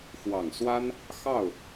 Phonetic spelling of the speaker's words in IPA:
xwɑ˨˩ŋswa˥n | xɑ˥˩ʊ̯

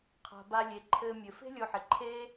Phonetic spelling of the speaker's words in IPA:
qʰa̤˩ba˨ lʲe˩ǃʰɘː˨ mʲɘ˩ fe̤˥lʲo˨ ħɪ˩ǃʰeː˦

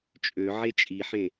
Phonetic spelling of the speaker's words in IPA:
t͡ʃʼø ʕet͡ʃʼiħẽ

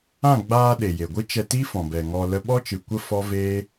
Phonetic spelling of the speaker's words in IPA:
ã˦˨ɡ͡baː˧ ɗe˨je˨ɡʷɨ˦ t͡ʃɛ˧ ti˦fɔ̃˨bɛ˨ ŋɔ˧lə˦ ɓɔ˦t͡ʃɨ˨kʷə˦ fɔ˦veː˦

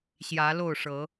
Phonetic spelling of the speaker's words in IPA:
ɕjä˨˦lo˥˨ʊ̯ʂɤ˨˦

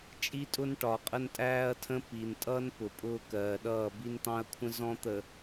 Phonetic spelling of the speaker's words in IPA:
t͡ʃʼi˦tʼʊ˦n ʈɒ˨qʼə˦ntʼæː˦ɐ̯ tʰə̃˦ pi˨n tʼʌ˦n pʊ˨pʼʊː˦kɜː˨ɗʌː˦˨ bi˦nt̪ɑ̃˦ɐ̯kʷʰə̃˦ zɔ̃˦t̪ə˨

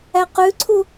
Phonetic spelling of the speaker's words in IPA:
æqʉǀʰu

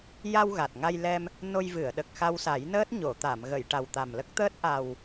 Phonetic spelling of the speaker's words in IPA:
ja˧w ɣa˨˩t̚ŋa˧jlɛ˧m | no˧jvɨ˨˩˨ə̯ ɗə˨˩k̚xa˧wsa˨˩˦jnəː˦˥t̚ ɲo˨˩˨ t̪a˨˩˨mɣə˨˩˨j ʈa˨˩wt̪a˨˩mlə˦˥k̚t̪əː˦˥t̚ ʔa˨˩w

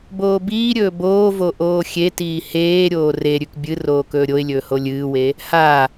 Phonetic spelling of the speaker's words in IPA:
boːbiːɾʲɵː boːvo ʔoːxʲetiː heːɾʲoː reɾʲʉk bʲɨ roːkɵːɾʲoɪ̯lʲɵː holʲɨːwe | ha

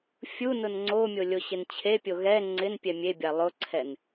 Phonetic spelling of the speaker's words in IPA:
fʲunʊn ŋ͡ǀomʲo lʲoɕɪnt͡ɕʰepʲo ɣɛ ŋ͡ǀɪn pʲɛmʲebʲa lˠʊǀʰɛn

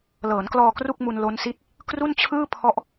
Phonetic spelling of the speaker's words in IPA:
lɤː˩˦nklɔː˧ kru˥˩k̚mu˧n lo˦˥nsi˦˥t̚ | kru˥˩nt͡ɕʰɯː˥˩ pʰɔ˦˥ʔ

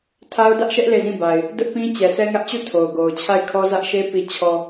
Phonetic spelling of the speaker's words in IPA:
tʰa˦ʊ̯dä˦ʔʃɛ˦ʔ le˦˨zĩ˦˨ba˨ɪ̯ | dʊ˦ʔpĩ˦ t͡ɕɛ˨sʰɛ˦ŋä˦ʔt͡ɕu˦˨ tʰo˨ʊ̯ɡo˨ʊ̯ t͡ɕʰa˦˨ɪ̯kʰɔ˦zä˦ʔʃe˦ pi˨ t͡ɕʰɔ˨

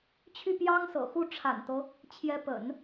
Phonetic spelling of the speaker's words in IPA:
t͡ɕʰy˥˩pjɑ˥ŋsɤ̰˨˩xu˥˩ ʈ͡ʂʰa̰˨˩nt̪ɤ˦ | t͡ɕʰjɛ˧˥pə̰˨˩˦n

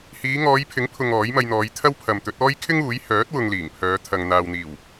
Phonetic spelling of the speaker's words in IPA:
hiː˨˧ŋɔː˨˧jpʰɪ˨˥ŋpʰʊ˨ŋ ɔː˨˥jmɐ˧jn̪ɔː˨˧jt̪ʰɐ˥w pʰɐ˨mt̪ɵ˨˥t̚ɔː˥j kʰɪ˥ŋuː˨˥j hœː˨˥t̚ wʊ˧ŋliː˨˩ŋpʰœː˨˧ t̪ʰɐ˨ŋ n̪aː˨wn̪iː˨˩w

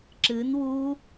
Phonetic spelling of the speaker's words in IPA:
ǁɨn wu

